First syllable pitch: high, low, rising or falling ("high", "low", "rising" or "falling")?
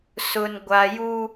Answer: low